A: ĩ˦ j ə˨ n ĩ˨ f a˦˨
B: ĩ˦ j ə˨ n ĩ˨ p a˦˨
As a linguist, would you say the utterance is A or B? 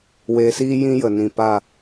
B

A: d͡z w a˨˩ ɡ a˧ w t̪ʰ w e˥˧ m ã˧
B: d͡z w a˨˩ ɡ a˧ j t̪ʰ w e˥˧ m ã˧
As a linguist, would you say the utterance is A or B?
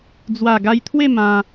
B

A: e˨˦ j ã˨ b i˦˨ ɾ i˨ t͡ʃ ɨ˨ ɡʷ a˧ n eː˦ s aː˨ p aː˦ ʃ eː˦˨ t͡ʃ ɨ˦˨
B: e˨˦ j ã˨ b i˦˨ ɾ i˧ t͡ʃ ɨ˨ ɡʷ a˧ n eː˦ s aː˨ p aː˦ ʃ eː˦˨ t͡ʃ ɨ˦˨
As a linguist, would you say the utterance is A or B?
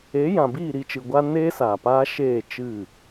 B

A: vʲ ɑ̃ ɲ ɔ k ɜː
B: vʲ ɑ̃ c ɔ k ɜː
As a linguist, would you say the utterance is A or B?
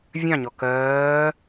A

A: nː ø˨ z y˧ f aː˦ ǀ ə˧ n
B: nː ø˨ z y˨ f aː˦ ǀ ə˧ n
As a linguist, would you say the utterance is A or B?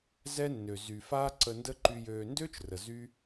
B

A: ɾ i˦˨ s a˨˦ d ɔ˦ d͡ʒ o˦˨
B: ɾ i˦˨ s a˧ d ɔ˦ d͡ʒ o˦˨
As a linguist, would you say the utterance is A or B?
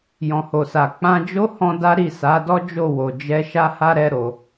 A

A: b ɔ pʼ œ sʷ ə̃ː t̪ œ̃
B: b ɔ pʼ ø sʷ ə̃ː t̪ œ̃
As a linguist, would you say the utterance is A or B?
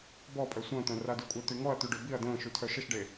A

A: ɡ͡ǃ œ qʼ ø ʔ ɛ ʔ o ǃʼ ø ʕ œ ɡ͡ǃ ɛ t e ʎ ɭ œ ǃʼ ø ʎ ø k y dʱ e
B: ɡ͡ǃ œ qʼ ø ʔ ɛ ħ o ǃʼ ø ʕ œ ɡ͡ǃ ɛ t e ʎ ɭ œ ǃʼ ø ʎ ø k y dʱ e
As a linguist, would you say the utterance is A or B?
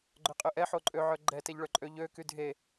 B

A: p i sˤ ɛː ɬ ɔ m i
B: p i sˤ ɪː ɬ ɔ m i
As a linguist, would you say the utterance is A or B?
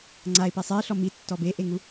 B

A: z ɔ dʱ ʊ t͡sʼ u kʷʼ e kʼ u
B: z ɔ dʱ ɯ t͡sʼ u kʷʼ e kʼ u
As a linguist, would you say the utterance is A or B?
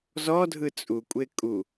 B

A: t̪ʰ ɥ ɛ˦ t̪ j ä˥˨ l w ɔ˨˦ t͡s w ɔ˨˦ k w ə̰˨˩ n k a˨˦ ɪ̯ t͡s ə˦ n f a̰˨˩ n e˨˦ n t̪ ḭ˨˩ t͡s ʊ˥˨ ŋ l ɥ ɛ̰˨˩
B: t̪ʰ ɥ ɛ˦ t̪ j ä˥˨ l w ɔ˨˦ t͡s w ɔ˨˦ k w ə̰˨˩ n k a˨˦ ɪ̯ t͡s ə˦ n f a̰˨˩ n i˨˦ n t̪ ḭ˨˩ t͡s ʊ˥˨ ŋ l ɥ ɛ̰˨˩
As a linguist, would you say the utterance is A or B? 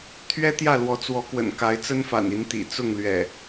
B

